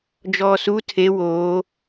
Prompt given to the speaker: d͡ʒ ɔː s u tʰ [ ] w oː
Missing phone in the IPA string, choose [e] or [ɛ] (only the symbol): e